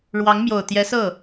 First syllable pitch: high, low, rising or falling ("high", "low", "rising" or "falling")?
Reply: rising